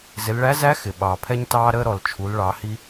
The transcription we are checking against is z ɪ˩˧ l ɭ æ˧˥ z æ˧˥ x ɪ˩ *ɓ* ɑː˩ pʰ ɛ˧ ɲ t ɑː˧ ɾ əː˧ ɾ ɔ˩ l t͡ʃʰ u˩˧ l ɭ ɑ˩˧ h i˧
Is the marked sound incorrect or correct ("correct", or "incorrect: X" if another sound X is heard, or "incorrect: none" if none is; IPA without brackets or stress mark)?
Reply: correct